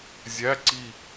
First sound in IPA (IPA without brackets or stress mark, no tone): zʲ